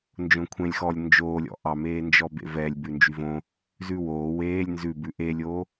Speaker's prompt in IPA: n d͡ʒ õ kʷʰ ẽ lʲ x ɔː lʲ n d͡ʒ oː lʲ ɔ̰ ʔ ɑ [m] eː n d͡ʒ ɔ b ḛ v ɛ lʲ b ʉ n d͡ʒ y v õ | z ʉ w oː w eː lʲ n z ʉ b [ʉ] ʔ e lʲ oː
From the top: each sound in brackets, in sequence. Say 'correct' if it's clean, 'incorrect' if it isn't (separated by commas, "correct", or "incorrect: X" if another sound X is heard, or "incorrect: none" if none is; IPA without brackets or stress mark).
correct, correct